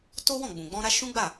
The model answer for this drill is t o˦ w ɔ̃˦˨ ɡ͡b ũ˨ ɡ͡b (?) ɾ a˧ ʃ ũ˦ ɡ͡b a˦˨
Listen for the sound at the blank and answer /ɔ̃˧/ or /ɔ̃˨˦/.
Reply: ɔ̃˧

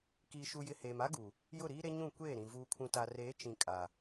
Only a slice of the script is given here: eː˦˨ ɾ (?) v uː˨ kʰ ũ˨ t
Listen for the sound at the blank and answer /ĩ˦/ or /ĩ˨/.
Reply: ĩ˨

